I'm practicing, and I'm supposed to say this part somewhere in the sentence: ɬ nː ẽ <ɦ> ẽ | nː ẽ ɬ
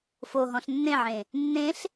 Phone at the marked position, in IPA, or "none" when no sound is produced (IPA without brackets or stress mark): ʕ